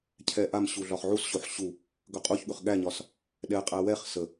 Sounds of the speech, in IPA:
cʰ ɛ ʔ a m ɕ u ɮ ɒ χ ʕ u s ɕ o ħ ɕ u | ɡ ɵ qʼ u ç ɠ ɵ χ ɠ æ ɲ ɒ s | ɗ ɛ qʼ æ w ɛ χ s ə

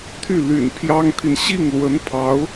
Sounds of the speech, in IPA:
t̪ʰ y˥˩ l y̰˨˩ n pʰ j ɑ˥ ŋ t̪ʰ i˨ n ɕ i˥˩ ŋ l w ə˧˥ n pʰ ɑ˧˥ ʊ̯

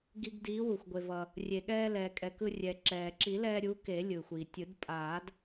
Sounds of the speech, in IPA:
ɡ i˧ ɡ d iː˨˥ w u˩ xʷ ɡʷ e˩ v ʌ˩ | rʲ e˩ ɠ ɛː˧ l ɛː˩ kʼ ɛ˩ k ɯ˧ rʲ ɛ˩ ǁ ɛː˩ ǁ i˨˩˦ l ɛː˧ ɾʲ u˨˥ k e˨˩˦ lʲ ɯ˩ xʷ iː˩ tʲ ɯ˨˩˦ d pʼ aː˨˩˦ d

